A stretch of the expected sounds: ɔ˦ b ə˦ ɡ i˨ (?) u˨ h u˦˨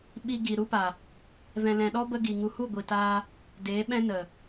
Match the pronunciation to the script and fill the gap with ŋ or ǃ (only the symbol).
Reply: ŋ